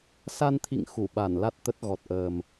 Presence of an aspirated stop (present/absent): present